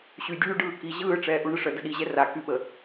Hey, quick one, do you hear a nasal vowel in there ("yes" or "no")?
no